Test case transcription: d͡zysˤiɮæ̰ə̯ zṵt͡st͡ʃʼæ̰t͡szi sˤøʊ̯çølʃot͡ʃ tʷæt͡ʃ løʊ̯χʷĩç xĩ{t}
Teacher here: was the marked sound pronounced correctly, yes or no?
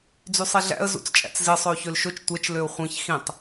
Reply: no